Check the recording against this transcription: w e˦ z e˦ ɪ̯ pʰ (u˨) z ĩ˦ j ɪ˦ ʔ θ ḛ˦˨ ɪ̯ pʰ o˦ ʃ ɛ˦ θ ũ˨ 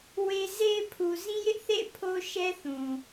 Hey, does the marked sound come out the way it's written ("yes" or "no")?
yes